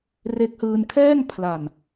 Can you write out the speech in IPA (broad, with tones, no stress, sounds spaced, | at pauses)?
r e˦˥ k̚ h ɯː˧ n kʰ ɛː˥˩ ŋ pʰ l a˨˩ n